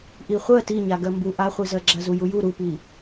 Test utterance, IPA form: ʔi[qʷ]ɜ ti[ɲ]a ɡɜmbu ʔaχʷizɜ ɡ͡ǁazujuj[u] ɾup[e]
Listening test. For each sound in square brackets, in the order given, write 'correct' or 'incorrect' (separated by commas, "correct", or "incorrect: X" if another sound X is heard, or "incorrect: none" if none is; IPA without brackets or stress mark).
incorrect: χʷ, correct, correct, incorrect: i